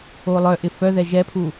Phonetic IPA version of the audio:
o lˠ œ ʔ ɪ f œ ð ɛ ʒ ɛ pʰ u

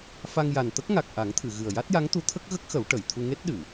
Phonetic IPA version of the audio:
f a˧ ŋ j a˨˩ n t̪ ə˦˥ k̚ ŋ a˨˩ k̚ ʔ a˨˩˦ ŋ t̪ʰ ɨ˨˩˨ ɣ ɨ˨˩ ə̯ j a˦˥ t̚ j a˧˥ ŋ t̪ u˧˥ t̪ʰ ə˦˥ k̚ ɣ ə˦˥ k̚ x ə˨˩˦ w ʈ ə˨˩˨ j t̪ʰ u˧ ŋ e˦˥ t̚ ɗ ɨ˨˩˨

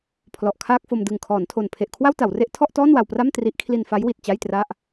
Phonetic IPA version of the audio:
pʰ l ɔ˨˩ ʔ kʰ aː˥˩ k̚ f o˧ m d ɯ˨˩ ŋ kʰ ɔː˩˦ n tʰ o˨˩ n pʰ e˨˩ ʔ kʰ w a˥˩ w t a˩˦ w r e˦˥ ʔ tʰ ɔ˥˩ ʔ t ɔː˥˩ n w a˧ w p r a˥˩ m t r i˦˥ ʔ kʰ l i˧ n f a˦˥ j w i˨˩ t̚ t͡ɕ a˥˩ j t r a˥˩ ʔ

